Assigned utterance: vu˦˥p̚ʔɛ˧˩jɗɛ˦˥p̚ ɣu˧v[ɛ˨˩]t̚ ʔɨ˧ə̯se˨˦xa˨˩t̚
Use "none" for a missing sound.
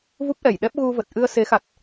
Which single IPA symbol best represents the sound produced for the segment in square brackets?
ə˨˩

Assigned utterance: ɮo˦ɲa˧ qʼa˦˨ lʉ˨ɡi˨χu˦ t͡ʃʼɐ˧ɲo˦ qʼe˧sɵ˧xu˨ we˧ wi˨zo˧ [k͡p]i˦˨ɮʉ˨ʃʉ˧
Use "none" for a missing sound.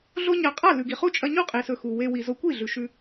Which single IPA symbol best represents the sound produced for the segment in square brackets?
kʷ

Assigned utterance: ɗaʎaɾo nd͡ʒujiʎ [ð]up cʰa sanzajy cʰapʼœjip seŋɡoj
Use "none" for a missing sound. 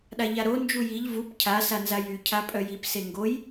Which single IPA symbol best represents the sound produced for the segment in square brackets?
v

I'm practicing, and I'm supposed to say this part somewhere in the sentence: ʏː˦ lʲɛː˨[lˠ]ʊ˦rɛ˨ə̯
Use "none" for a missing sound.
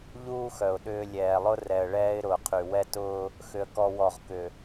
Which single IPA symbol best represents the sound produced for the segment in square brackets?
lˠ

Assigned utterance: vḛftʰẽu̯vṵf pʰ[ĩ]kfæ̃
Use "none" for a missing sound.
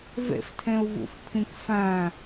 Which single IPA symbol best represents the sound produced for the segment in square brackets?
ĩ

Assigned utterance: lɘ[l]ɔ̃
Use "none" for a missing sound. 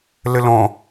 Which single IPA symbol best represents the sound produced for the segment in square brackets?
l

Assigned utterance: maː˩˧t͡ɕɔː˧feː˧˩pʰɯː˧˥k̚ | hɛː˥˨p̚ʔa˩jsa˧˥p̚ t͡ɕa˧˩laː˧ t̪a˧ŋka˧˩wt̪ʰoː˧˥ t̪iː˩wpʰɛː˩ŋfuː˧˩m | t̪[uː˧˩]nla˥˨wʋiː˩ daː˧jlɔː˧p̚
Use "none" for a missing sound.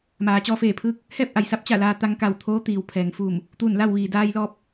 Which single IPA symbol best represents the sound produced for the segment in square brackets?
uː˧˩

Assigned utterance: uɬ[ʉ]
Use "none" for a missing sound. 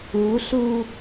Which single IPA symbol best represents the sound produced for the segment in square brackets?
u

